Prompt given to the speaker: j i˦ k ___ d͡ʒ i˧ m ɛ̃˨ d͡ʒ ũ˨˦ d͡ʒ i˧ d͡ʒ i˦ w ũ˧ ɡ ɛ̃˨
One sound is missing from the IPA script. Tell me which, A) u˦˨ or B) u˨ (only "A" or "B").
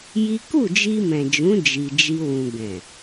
A